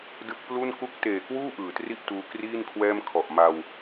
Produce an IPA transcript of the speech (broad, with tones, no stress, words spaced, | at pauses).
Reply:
dɯ˦˥k̚plu˥˩n ku˦˥k̚teː˨˩kwuː˥˩ ʔɯː˩˦tri˥˩ʔtuː˧ kriː˥˩nkʰwɛː˥˩mkʰɔ˨˩ʔ ma˧w